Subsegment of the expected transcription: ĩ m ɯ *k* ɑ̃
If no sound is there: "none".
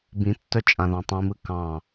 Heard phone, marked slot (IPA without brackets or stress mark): k